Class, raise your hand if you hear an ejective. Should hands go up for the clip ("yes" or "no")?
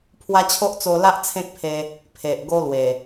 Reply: no